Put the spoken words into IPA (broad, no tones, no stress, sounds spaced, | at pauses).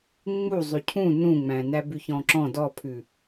ŋ͡m u zˤ ʉ cʰ ũ n ũ ŋ͡m æ̃ n æ b ʉ ç ɔ̃ ǁ ɔ̃ d ɔ pʰ ʉ